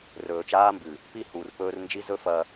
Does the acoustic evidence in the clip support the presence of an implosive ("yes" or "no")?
no